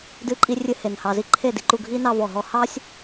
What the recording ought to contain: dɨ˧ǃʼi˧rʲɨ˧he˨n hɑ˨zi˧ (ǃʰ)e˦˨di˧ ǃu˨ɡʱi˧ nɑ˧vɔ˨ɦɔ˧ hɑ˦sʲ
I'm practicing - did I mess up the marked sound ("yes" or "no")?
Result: no